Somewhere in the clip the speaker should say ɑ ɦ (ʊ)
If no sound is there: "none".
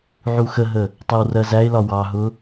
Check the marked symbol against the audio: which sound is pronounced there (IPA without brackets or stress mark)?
ʊ